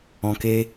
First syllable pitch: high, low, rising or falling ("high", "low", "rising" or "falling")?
low